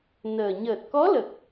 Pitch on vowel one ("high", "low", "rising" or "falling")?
low